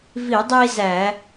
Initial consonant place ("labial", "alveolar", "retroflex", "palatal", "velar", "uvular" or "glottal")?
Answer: labial